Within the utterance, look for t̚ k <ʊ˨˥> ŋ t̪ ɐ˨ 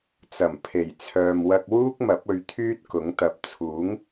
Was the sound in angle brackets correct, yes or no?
yes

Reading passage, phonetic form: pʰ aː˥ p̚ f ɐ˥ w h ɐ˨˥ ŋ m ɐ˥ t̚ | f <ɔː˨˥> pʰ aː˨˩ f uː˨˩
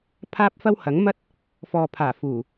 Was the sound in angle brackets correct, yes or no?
no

